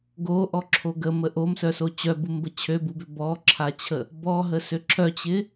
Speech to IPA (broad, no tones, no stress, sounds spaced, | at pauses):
ɡ o ʔ ɔ ǁʰ o ɡ ə m ə ʔ o m s œ s o t͡ɕ œ b u m b ə t͡ɕʰ ø b u b ʏ b ɔ ǁʰ a t͡ɕʰ ə | b ɔ ɦ ə s ø ǁʰ œ t͡ɕ ɪ